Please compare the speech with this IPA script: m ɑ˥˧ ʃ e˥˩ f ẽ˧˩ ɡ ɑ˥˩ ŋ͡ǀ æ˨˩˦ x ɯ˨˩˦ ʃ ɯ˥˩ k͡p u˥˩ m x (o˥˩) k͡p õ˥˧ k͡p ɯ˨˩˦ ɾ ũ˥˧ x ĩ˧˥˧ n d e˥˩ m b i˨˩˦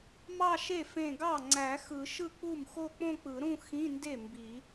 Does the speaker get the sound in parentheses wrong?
yes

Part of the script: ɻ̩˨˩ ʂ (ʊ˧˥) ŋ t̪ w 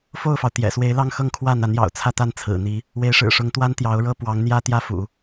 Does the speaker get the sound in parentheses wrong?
no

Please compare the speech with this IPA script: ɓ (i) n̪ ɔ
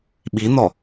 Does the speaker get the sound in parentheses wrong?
no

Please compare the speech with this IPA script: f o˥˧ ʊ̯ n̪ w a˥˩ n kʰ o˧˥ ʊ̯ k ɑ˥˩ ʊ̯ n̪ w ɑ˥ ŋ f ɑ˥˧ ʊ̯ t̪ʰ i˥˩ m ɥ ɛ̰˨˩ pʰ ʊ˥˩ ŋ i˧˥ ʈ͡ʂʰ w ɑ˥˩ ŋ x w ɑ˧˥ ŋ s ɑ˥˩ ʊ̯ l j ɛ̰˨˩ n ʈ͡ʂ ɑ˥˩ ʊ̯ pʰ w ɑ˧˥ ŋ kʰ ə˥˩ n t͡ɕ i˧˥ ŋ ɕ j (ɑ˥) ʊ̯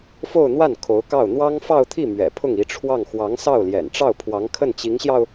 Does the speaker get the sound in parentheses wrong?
yes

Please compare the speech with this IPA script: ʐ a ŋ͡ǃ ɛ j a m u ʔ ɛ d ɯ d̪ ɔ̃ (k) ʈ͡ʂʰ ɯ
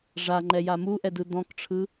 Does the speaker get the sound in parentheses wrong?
no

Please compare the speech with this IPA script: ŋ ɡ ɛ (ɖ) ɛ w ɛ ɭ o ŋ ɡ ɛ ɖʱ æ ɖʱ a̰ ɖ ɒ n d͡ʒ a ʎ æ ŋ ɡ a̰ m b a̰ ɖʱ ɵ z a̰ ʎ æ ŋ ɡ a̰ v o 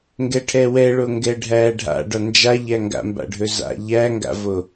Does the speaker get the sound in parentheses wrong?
yes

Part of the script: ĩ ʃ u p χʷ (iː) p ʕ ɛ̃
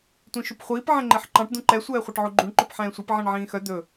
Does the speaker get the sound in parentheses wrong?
no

